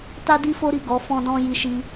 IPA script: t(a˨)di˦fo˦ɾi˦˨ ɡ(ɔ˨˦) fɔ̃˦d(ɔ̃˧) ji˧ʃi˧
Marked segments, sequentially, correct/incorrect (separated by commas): incorrect, correct, incorrect